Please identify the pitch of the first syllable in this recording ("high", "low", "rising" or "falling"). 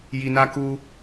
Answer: low